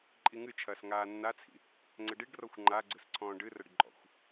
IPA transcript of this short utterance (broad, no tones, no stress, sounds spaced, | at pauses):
ǃʼ i ŋ ɨ t͡ʃʰ ɐː s ŋ aː nː a t͡sʰ ḭ | ŋ͡ǀ ɘ ɖ i ɖ r ɔ xʷ ŋ͡ǃ a ɡ͡ǀ ɨ s ǀʰ ɔ̃ː ɖ ɨ r ɐ ɖ ǃʼ ɔ̰ xʷ